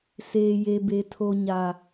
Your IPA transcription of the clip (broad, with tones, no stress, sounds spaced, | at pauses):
s eː˨ j e˨ b e˨ tʰ o˨ ɲ a˨